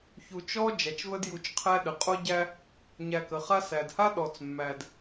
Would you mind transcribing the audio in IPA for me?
çu˨t͡ʃɔ˥ d͡ʒæ˩t͡ʃvə˦dju˨t͡ʃqʰæ˦ ɗə˩qʼo˦ ɟæ˦ | ɲæ˨kə˩ χa˦sæ˩dha˥ ɗɔ˨t͡s mːæ˨d

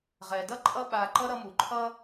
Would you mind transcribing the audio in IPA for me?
ʁɛ˩dʌ˥ǃʼʌ˦ɓa˨ ǃʌ˥ɾʌ˦mu˩ ǃʰʌ˦

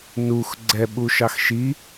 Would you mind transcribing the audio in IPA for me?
nux ɡ͡ǀɛɓuʃɑx ʃi

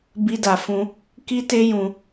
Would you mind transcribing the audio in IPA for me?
bi˦da˧fũ˦ | ki˦te˦ jũ˧

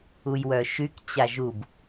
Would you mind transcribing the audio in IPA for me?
ujwœʃyk t͡ɕaʒub

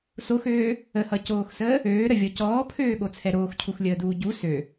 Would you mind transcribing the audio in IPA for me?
soxøː | əhʌcoːxsəː | øːɾəvʲɔ cɔːpʰøːɠot͡sʰɛ ɾoːxcʰuxlʲəːduː ɟu sø

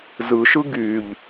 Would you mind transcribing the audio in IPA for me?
zɯʃɯ ɡyʎ

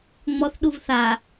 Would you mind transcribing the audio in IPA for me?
ŋ͡mɔθɗuv θa

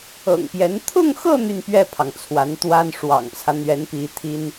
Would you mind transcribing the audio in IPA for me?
ɤ̰˨˩ŋpjɛ˧˥n t̪ʰʊ˥˧ŋxɤ˥˧ n̪y˥˧npɥɛ˥˩pʰɑ˩ŋ t͡sʰwa˧˥nt̪wa˥n ʂwɑ̰˨˩ŋt͡sʰä˦ n̪ɥɛ˧˥npi˧˥t̪ʰi˥n

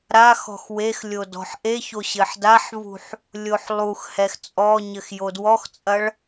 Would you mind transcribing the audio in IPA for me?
ɾaxɔ̤x wex lʲodɔ̤ħʔeço ɕɘħdaħvṳħ | lʲoħlˠuxhɛx t͡sʼɔɲɘx jodwɔxt͡sʼɐɭ

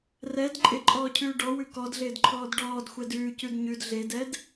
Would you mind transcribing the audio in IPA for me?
rɛd ǃʼɪǃʼɔːcʰʉː ɖɔwʉ kɔdɮɪːdǃʰɔːd ɖɔːdxʷɛd ʉːcʉd ɲʉd ɮedɛd

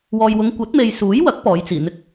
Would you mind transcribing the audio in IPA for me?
wɔː˨jwʊ˨˧ŋ kʷɐ˨˥t̚me˨jsuː˨˥jwɐ˨˥k̚ pɔː˨˥jt͡siː˨˩n̪ɪ˥k̚

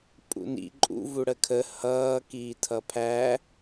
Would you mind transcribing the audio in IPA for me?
pʼṵnḭ ǃʼṵ vuɽəkʰə hʌː kiːtʰʌpʰæ

